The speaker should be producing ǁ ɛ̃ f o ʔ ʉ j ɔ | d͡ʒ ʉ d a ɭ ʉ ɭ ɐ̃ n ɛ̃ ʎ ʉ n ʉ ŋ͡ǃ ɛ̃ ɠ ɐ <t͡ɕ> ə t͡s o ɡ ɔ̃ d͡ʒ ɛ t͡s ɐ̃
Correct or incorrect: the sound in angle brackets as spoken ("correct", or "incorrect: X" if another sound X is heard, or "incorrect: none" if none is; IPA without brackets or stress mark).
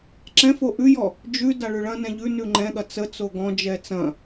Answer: incorrect: t͡s